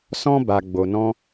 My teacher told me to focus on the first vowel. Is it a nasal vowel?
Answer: yes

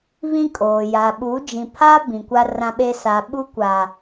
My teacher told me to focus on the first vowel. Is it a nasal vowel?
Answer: yes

